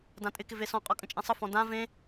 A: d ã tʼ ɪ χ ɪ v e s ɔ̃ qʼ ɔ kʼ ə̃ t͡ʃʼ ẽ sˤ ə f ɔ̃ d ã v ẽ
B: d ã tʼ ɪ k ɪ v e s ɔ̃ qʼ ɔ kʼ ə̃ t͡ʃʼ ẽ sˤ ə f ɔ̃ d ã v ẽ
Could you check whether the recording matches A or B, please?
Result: B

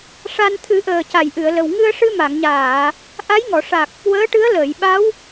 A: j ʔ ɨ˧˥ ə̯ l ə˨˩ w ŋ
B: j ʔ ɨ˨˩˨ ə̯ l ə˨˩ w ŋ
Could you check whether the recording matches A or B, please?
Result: B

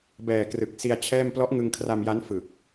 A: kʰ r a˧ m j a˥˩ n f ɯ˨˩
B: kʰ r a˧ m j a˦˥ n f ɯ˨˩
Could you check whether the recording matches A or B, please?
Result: B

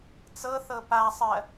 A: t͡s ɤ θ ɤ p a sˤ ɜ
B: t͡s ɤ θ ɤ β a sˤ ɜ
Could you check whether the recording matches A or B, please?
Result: A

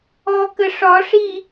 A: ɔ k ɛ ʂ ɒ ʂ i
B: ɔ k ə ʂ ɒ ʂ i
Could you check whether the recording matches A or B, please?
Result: B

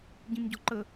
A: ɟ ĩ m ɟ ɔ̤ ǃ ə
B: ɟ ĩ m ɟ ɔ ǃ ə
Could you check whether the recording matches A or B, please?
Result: A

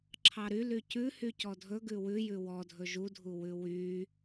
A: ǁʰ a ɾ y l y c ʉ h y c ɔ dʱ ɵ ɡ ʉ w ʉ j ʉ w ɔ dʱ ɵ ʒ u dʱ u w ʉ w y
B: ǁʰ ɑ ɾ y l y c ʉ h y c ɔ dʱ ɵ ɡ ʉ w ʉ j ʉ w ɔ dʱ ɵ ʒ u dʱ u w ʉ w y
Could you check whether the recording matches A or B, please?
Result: B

